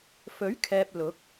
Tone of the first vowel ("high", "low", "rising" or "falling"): rising